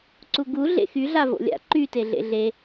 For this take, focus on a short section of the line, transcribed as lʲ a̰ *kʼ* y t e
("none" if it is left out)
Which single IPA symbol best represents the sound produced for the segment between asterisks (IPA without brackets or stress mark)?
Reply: ǃ